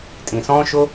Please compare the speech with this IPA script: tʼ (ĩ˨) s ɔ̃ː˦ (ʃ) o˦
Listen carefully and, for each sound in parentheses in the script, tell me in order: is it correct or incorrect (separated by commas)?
correct, correct